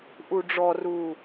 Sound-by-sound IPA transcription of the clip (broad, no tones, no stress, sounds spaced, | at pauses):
ʔ u ɖ͡ʐ ɔ r u